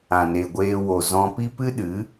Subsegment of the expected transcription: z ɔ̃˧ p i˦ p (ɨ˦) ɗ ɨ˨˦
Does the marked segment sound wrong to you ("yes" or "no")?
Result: no